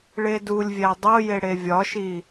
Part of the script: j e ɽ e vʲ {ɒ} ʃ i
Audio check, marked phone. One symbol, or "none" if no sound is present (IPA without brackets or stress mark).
ɒ